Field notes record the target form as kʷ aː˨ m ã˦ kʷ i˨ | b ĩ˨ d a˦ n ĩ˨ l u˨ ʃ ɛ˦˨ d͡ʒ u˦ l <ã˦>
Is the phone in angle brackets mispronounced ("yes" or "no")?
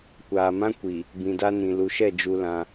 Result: no